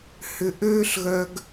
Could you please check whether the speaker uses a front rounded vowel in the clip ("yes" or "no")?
yes